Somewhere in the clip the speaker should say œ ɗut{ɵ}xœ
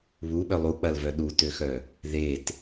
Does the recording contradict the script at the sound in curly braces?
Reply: yes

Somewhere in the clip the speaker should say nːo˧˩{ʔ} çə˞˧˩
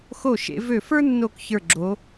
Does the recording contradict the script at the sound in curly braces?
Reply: yes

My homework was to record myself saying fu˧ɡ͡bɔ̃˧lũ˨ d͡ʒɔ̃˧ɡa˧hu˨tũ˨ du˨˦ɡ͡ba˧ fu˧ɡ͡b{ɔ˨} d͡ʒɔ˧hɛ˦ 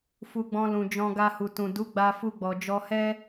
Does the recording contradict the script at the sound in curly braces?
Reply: no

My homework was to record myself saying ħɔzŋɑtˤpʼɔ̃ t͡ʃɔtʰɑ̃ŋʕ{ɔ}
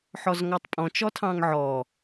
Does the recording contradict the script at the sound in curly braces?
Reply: no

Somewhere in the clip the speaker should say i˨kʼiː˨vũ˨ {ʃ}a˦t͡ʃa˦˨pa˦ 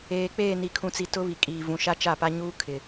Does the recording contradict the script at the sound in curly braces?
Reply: no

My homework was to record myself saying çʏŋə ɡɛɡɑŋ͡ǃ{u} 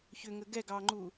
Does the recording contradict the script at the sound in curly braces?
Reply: no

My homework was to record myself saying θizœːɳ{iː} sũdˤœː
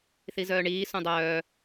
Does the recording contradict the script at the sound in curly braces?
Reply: no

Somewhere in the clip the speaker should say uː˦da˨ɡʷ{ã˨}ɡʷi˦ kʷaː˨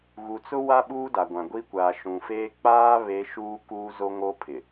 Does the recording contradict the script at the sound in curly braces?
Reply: no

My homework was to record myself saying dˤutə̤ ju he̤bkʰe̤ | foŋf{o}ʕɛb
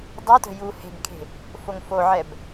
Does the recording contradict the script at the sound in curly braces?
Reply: no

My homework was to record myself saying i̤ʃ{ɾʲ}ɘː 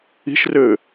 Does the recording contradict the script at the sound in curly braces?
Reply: yes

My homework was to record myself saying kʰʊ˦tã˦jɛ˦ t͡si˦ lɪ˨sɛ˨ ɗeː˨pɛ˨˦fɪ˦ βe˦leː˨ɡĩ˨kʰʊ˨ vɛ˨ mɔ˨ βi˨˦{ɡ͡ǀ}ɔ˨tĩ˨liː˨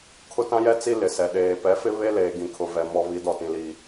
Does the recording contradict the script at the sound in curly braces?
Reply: yes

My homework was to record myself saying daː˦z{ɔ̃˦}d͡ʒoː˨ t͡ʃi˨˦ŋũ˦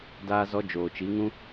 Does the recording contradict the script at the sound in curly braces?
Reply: yes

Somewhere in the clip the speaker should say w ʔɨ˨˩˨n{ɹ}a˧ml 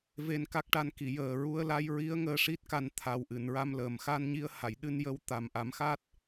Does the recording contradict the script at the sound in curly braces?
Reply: no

